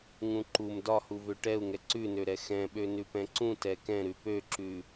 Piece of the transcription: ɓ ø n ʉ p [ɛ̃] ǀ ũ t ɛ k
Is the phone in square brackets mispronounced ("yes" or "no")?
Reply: no